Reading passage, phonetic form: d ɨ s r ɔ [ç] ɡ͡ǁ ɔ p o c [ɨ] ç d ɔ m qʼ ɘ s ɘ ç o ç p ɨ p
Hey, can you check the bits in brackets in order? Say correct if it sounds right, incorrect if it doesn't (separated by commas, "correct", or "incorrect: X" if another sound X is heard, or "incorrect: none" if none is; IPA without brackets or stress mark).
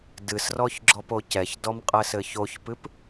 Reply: correct, incorrect: ɛ